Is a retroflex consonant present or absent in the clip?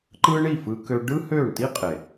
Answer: present